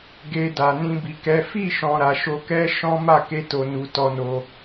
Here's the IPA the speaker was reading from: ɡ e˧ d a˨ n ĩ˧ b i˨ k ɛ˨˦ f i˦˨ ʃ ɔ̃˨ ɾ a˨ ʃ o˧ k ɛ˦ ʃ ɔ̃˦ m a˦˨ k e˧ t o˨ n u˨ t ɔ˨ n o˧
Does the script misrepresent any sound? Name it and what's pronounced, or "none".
ɔ˨ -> ɔ˧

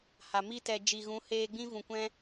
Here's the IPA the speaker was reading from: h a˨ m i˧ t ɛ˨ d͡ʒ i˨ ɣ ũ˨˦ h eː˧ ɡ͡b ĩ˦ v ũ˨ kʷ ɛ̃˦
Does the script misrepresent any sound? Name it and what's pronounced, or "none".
none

